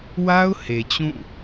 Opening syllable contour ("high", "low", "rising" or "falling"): high